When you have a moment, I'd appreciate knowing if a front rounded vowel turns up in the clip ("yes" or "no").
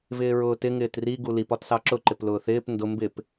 no